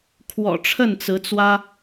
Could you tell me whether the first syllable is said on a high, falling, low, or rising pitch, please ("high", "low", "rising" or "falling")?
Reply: low